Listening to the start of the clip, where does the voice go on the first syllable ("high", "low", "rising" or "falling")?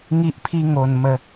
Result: high